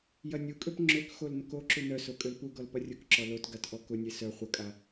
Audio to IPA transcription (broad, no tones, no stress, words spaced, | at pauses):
jɐnʲukʼøp ŋ͡ǁøkxol nʊkoǁu nœso kʼølpuɡɔl pɐrʲʊkǁɔ lot ɡatʔɔkʊnʲe sœ χʷɐkʼa